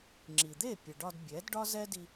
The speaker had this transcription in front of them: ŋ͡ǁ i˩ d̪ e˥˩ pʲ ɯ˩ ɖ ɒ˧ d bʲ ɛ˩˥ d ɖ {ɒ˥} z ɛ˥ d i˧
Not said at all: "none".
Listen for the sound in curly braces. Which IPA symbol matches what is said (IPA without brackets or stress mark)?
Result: ɒ˥